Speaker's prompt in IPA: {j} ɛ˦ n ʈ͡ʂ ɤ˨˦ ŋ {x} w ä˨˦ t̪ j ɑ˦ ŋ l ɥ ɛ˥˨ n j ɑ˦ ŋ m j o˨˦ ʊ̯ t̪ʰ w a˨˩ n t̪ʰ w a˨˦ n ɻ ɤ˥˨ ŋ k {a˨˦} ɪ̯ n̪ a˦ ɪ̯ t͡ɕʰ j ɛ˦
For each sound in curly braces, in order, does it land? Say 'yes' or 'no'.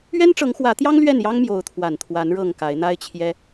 no, yes, yes

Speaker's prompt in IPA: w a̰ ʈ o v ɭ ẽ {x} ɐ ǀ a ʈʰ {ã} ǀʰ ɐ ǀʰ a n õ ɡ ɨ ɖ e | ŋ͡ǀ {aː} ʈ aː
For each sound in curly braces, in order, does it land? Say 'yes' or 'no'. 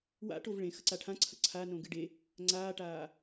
yes, yes, yes

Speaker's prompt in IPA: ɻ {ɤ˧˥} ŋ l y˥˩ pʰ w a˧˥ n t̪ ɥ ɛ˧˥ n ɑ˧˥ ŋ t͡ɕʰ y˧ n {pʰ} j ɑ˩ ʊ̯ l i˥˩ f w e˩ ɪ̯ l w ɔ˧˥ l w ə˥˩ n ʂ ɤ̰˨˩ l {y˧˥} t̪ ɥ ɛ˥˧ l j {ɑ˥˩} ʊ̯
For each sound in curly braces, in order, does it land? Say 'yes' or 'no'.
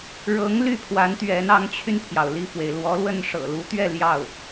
yes, yes, no, yes

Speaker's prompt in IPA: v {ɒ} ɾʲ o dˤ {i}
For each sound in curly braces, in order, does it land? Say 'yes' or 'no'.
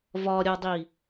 yes, yes

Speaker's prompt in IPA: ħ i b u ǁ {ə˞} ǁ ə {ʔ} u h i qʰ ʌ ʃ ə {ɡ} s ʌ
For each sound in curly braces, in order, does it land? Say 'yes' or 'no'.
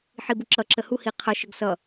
no, no, yes

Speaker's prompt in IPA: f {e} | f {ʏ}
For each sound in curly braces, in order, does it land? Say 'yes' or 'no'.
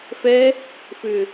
no, yes

